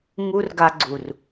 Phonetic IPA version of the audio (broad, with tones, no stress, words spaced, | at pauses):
ŋu˦rɡa˧ɡ͡ǀu˨r